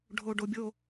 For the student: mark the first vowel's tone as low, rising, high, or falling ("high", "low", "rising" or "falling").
low